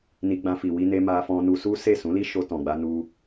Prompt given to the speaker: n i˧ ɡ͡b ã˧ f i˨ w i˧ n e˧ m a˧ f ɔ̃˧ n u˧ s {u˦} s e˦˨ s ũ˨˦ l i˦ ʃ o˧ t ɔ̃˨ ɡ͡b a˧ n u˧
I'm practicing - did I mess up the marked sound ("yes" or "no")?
no